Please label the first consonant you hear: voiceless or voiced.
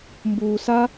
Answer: voiced